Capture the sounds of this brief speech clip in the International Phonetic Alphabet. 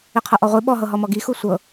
i qʰ ɤ ʔ ɔ ʁʷ i ɓ ɔ ɦ ɤ ɦ ɔ m ɔ ɡ i x u sʷ ɤ

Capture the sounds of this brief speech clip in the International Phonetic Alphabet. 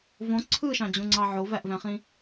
v õ ǀʰ ɯ ʃ ɑ̃ d͡ʑ ũ ŋ͡ǀ ɑ ʕ o v æ ʔ v æ̃ χ ĩ

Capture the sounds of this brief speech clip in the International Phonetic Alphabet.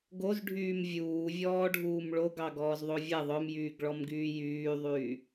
ɡ o z ɖʱ yː m vʲ uː vʲ ɔː ɖʱ uː m ɭ o ɡ ɑ ɡ ɔː z ðˤ o vʲ ɛ ðˤ œ m j yː ɡ ɭ ɔ m ɡ yː j yː ðˤ yː

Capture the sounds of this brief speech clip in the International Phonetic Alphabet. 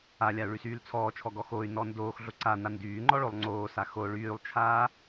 a lʲ a u̯ ɭ y s yː l t͡sʰ ɔː t͡ʃʰ ɔ ɡ ɔ x o y̯ n ɔ n d oː x ɮ o ǀ a n a n d yː ŋ͡ǃ ɔ ɭ o lˠ ŋ͡ǀ oː s a x o ɭ yː lˠ t͡ʃʰ aː

